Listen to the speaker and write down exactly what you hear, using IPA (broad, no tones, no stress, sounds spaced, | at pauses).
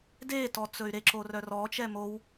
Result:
d e t ɔ t͡s ɵ y̯ ɾ e ǁ o r œ r ɔ t͡ʃ ɛ m o w